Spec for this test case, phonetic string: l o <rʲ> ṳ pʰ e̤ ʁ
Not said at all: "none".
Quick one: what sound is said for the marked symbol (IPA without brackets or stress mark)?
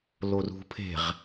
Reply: r